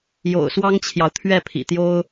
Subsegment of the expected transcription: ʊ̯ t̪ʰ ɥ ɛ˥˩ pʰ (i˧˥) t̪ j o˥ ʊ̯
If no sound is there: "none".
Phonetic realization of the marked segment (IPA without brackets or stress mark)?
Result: ḭ˨˩